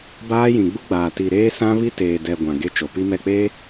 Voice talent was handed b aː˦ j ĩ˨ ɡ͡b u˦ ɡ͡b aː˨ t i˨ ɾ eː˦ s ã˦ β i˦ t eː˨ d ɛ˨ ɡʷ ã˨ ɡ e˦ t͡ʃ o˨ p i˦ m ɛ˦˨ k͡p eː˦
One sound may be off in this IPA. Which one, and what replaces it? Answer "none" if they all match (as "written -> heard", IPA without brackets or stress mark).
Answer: none